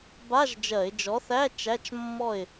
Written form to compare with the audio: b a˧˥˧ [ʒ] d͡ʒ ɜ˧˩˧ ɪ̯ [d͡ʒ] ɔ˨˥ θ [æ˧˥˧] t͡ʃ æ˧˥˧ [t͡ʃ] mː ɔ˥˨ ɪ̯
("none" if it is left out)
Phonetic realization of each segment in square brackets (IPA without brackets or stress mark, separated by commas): ʒ, d͡ʒ, æ˧˥˧, t͡ʃ